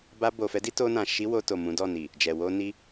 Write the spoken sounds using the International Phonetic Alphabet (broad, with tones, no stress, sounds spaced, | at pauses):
b a˧ b o˨ f ɛ˨˦ d i˦ t o˧ n ã˨ ʃ i˨˦ w o˧ t o˨ m ũ˨˦ d ɔ˦˨ n i˨ | d͡ʒ ɛ˨ w o˧ n i˧